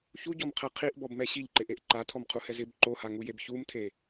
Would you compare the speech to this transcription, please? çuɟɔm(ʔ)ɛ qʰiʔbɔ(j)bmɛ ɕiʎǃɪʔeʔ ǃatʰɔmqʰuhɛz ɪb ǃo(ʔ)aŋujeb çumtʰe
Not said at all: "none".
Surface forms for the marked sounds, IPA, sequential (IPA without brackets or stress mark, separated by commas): qʰ, none, h